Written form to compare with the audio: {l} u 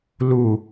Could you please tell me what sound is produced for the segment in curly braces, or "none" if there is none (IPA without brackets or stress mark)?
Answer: l